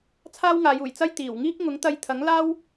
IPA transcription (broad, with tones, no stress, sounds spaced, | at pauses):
t͡sʰ aː˥ w ŋ aː˨˧ j uː˨˩ j t͡s ɐ˥ j t̪ iː˨˩ w ŋ iː˥ k̚ ŋ ʊ˨˥ ŋ t̪ ɐ˧ j t̪ʰ ɐ˨˥ ŋ l aː˥ w